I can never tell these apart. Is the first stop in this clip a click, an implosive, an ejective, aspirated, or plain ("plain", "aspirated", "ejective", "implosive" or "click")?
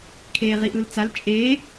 aspirated